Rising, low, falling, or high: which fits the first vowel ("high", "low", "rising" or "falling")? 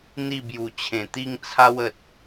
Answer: falling